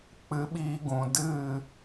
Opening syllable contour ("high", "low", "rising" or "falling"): rising